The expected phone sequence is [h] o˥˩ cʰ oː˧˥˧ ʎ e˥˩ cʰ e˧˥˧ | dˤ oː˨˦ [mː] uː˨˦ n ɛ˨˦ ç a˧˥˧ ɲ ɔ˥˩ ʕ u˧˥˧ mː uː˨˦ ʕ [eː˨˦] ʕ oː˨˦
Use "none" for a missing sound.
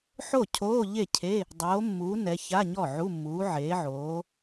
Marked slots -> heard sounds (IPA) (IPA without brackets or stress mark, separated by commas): ħ, mː, eː˨˦